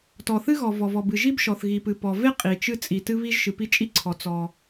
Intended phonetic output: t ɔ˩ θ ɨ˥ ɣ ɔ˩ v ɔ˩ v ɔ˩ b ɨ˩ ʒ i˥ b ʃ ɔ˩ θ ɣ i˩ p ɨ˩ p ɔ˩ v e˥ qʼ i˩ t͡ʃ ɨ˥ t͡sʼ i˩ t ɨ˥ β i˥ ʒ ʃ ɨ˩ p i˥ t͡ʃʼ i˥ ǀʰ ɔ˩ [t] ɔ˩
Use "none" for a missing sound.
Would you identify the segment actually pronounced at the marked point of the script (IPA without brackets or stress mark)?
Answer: t͡s